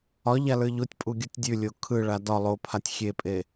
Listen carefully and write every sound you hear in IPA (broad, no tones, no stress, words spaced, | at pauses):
ɒ ʎalə˞ʎotʲpʼu ɡʲutʲdʲʉlʲo kʰɯɭa dɒ lˠopʰatʲ xʲepʼe